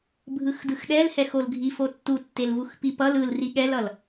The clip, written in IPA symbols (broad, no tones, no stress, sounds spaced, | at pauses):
bʱ ɯ x d ɯ x ɗ ɛ l h ɛ x o l ɡʱ i f o tː u tː e l v u x p i p ʌ l ɯ l r i ɠ ɛ l ʌ l